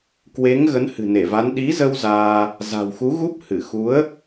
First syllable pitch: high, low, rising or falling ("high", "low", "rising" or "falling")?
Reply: rising